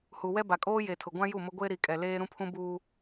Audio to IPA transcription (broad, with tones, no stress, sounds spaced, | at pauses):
h u˨ w ɛ˦ b a˨ kʼ oː˦ j e˨ tʰ ʊ˨ ɡʷ ã˦ j u˦˨ m ʊ˦ ɡʷ e˦ ɾ i˨ kʼ ɛ˨ l eː˦ ɾ ũ˦ pʰ ũ˦ b uː˦